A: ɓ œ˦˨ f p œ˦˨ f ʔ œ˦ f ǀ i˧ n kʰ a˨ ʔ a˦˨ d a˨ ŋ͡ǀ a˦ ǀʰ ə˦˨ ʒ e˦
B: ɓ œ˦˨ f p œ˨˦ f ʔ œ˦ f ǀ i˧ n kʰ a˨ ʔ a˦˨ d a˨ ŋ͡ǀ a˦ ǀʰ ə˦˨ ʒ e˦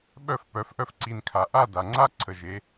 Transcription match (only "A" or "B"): B